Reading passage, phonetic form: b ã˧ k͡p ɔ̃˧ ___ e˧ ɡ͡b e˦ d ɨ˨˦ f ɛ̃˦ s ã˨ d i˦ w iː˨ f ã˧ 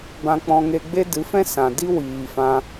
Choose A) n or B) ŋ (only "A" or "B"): B